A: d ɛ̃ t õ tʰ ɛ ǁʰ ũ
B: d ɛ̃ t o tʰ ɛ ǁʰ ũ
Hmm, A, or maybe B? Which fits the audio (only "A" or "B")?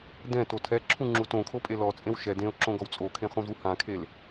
B